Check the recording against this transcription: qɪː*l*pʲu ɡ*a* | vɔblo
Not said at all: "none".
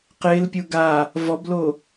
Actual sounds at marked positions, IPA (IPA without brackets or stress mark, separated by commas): l, a